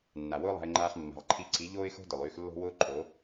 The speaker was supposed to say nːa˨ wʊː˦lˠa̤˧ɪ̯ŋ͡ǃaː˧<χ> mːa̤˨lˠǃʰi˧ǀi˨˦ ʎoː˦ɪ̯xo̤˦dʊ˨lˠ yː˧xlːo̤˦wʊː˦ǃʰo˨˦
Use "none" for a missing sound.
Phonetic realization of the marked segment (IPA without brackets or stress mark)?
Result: χ